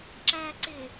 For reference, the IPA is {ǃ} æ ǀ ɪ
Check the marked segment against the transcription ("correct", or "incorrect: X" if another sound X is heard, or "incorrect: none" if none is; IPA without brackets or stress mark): incorrect: ǁ